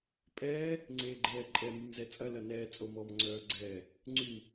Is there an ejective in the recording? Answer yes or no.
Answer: yes